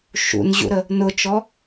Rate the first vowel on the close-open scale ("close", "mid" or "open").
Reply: close